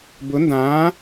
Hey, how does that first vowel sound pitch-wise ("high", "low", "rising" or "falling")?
rising